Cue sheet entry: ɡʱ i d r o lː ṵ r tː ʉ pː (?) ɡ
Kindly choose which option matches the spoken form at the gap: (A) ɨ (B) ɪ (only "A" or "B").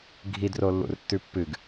A